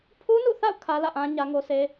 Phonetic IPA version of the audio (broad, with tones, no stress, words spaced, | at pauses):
pʰu˦nṵ˦˨θa̰˦˨ʊ̯ kʰä˦lä̰˦˨ʔã˦ ɲä˦ŋo˦ se˦